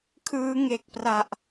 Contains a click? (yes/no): no